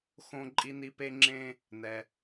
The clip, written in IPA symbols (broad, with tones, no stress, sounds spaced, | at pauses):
x õ˧ ǃʼ i˧ n i˧ p e˧ ŋ͡ǁ ẽ˧ | n ɛ˩